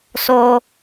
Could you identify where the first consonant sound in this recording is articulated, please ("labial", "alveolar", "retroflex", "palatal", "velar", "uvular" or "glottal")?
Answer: alveolar